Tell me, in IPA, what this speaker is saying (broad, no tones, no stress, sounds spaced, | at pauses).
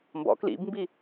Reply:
m b ɔ̰ k l ḭ b m b i